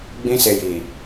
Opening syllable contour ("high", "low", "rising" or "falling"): high